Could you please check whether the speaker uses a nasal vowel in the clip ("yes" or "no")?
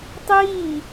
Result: no